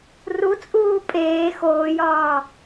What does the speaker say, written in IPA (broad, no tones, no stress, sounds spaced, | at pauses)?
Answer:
r u t͡sʼ uː pʼ eː x oː j ɒː